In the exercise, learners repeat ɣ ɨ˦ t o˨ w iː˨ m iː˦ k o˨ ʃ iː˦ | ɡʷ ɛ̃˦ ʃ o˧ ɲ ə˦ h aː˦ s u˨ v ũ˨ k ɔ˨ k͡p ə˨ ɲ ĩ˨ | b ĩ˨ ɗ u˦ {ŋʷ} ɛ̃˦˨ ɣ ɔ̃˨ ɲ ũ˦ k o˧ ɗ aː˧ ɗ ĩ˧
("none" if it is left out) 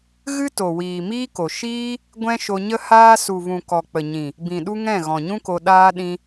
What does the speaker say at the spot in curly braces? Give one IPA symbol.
ŋ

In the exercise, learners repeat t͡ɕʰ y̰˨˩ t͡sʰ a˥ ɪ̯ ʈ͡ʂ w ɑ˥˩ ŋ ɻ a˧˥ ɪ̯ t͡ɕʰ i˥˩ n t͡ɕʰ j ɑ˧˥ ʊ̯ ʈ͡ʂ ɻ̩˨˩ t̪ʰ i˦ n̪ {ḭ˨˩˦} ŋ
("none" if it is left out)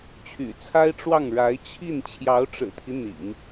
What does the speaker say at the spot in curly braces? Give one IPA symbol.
ḭ˨˩˦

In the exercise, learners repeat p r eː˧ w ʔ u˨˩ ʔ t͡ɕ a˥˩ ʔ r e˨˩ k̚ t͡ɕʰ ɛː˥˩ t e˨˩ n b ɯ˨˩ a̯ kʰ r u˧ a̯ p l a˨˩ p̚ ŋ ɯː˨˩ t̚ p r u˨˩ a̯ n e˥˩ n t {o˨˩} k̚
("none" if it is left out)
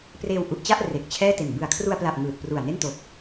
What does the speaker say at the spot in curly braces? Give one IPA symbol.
o˨˩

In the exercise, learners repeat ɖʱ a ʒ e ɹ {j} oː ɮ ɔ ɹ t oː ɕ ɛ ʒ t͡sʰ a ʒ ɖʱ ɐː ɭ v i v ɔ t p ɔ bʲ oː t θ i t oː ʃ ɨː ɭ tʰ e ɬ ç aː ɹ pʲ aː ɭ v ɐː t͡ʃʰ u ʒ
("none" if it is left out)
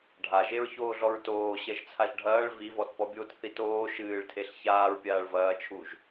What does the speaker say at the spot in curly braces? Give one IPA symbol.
ç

